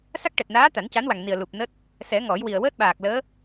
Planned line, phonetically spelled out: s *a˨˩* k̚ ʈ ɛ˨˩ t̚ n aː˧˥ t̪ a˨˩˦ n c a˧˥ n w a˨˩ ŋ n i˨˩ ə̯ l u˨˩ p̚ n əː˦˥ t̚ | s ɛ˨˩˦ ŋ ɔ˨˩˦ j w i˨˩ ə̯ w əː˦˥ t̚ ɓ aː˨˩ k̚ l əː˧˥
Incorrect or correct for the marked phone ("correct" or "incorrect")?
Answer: incorrect